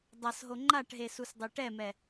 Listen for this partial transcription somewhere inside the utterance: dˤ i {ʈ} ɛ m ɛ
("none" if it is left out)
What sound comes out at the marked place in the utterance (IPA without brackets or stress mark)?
ʈ